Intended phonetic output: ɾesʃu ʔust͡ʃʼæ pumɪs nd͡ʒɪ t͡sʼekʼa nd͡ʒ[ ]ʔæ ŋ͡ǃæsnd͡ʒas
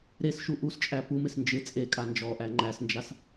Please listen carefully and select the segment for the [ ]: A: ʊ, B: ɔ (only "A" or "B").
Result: B